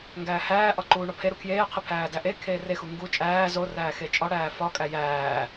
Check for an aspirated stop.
present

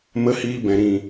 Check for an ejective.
absent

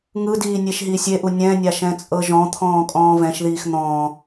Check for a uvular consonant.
absent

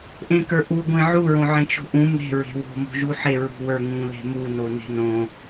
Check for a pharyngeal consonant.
present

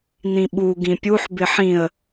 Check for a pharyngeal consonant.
present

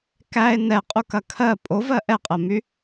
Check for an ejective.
present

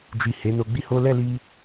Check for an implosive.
absent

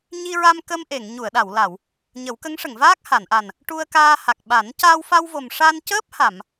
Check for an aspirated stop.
absent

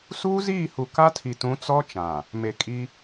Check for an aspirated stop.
present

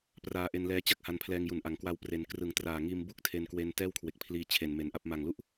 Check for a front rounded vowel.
absent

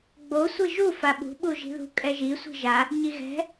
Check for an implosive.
present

